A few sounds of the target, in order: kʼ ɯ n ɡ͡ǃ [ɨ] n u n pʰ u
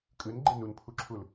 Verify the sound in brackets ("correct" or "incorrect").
incorrect